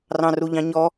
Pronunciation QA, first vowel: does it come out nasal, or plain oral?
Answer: nasal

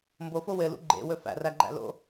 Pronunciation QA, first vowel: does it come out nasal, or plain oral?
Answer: oral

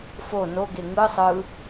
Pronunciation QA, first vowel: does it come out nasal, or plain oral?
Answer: oral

